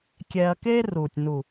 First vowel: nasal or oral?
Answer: oral